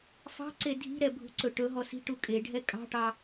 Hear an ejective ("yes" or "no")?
yes